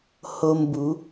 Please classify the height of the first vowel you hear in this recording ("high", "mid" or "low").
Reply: mid